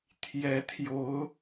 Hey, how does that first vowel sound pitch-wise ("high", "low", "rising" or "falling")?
rising